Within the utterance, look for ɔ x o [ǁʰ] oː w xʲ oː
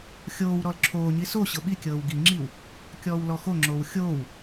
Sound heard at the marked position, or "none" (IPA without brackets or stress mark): ŋ͡ǁ